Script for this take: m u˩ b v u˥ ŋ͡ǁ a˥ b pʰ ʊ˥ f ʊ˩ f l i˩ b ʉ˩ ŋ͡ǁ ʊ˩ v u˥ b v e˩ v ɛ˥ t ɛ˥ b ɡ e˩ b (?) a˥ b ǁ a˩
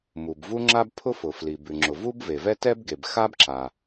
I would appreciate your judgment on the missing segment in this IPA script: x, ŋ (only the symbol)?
x